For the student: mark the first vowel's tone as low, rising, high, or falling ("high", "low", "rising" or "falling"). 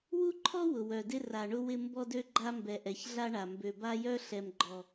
high